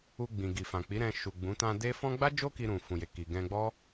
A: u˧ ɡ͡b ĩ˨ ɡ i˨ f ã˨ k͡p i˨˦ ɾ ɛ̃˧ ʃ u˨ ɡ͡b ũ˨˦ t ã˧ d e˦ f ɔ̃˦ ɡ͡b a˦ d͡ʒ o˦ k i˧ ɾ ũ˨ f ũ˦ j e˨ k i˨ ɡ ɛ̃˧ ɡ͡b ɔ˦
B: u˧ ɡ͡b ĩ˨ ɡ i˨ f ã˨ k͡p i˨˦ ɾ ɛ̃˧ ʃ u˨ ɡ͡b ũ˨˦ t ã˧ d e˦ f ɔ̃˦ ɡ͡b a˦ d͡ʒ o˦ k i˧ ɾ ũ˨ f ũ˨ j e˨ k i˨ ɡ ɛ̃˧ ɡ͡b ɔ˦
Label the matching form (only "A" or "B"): B